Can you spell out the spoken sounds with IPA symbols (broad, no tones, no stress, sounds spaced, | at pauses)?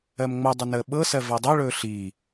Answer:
ɜ m ŋ͡m ɤ dˤ u n əː ɓ ɤ s ɜ v a dˤ o ɭ ɵː ɬ iː